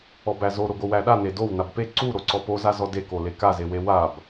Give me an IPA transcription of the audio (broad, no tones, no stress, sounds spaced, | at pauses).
ɔ b æ z o ɾ o ɡ o w æ ɗ a n e d o w n a b p e ǀ u ɾ o ǀ ɔ p o z a z ɔ d e k o l e k a z e w e w a b